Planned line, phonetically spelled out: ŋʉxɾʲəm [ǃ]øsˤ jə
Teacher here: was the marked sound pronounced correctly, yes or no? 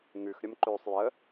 yes